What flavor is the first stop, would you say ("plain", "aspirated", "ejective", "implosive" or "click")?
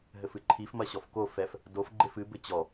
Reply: click